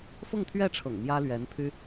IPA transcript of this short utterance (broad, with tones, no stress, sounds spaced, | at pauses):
f ʊ˥˧ ŋ t̪ʰ ɥ ɛ˥˩ ʈ͡ʂʰ ɤ̰˨˩ ŋ m j ä˥ l ɥ ɛ˧˥ n pʰ y˥